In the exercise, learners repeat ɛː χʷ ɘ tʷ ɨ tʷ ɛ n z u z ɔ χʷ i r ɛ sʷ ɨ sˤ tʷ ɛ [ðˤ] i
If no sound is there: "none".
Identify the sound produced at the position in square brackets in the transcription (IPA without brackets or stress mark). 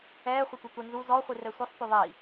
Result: ðˤ